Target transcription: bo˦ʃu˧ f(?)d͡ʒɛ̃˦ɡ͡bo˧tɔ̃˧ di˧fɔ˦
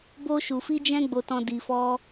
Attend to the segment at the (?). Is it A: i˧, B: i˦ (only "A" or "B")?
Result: B